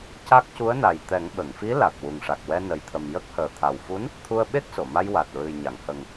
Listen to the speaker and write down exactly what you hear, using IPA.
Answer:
ca˦˥k̚ cu˧˥ə̯na˨˩jt̪ɛ˨˩˦ŋ ɓə˨˩˨ŋfi˧˥ la˨˩k̚ wu˨˩ŋʂa˨˩k̚wɛ˧ nə˨˩jt̪ʰə˨˩m jə˦˥k̚həː˨˩ t̪ʰa˨˩wfu˧˥n | t̪ʰu˧ə̯ɓe˦˥k̚so˨˩˨ma˧j wa˨˩t̚ɹɨ˨˩j ɲa˨˩˨ŋhə˨˩ŋ

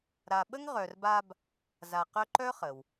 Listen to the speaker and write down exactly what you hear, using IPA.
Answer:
ɾa˨ɓə˥ŋ ʁœ˨rba˦b | za˨qœ˦ǃœ˥χə˩w

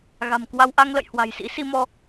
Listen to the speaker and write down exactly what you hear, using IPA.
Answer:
ɣa̤˨˩mkwa˧wʔa˧ŋ lə̰˧˨jhwa̤˨˩j sḭ˧˥si˧mɔ˧

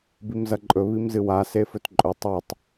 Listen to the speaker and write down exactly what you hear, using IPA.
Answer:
bimzɐǃʼɵ βimzɨwa sefɵtǃʼɵ tˤetˤ

